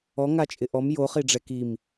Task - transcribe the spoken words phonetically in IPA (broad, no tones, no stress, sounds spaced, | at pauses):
ɔ ŋ a t͡ʃʼ ɪ ʔ ɔ m j o χ i ɖ͡ʐ ɛ k i m